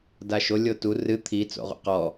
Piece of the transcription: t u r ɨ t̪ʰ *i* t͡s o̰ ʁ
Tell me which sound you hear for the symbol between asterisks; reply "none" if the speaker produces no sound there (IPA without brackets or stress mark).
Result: i